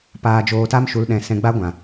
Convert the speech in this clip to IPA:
p aː˧ d͡ʒ oː˧ t a˦ m ʃ u˨ l ɗ ɛ̃˨ s ɛ̃˧ ɡ͡b a˦ ɡʷ ã˨

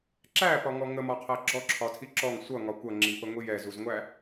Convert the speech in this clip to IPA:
ǁ æ p ɒ ŋ ɔ ŋ ə m ɒ qʰ æ ɡ͡ǁ ɔ ǁʰ ɒ tʰ i ǁ ɔ ŋ sʷ ʌ ŋ ɒ kʷ ʌ ŋ͡ǁ i p ə ŋʷ i j ɛ z u z ŋʷ æ

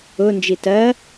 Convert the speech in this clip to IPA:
ʊ n d͡ʒ i t ɜ

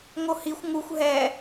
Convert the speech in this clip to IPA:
ŋ o h i xʷ ŋ u xʷ ɦ ɛ

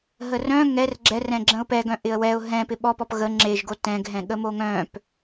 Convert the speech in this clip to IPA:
ɦ ə r œ̃ ŋ ɛ r ɡ͡ǁ ɛ r ɛ̃ ɡ͡ǁ ə̃ ʊ̯ p ɛ ɡ œ̃ ʔ ɪ ə̯ w ɛ ʊ̯ ɦ ɛ̃ p ɪ ɓ ɔ p ɔ p ɣ ə ŋ͡ǁ e ʒ ɡ o t ɛ̃ ɡ ɦ ɛ̃ ɠ ə m o ŋ œ̃ p

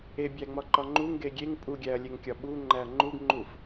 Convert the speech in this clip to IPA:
e bʲ æ ŋ͡m ɒ ǃ ɒ ŋ͡ǃ u ŋ ɡ e ɡʲ e ŋ pʼ u ɡʲ æ ɐ̯ lʲ e ŋ kʲ ɒ ɓ u ŋ͡ǃ æ ɐ̯ ŋ͡ǃ u ɡ ŋ͡ǃ u f

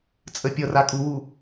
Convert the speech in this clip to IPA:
t͡sʼ ə pʲ ʌ r a kʼ u w u

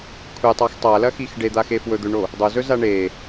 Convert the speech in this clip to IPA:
kʷʰ e tˤ a x tˤ a l ɐ x i x ɖ e d̪ a x e f w ɵ d̪ ɵ ɳ o | dˤ o z ɵ z a ɳ e

